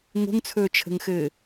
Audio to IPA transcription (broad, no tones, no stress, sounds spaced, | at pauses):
ŋ o̤ ŋ t͡sʰ ɵː t͡ʃʰ ə̤ ŋ x ɘː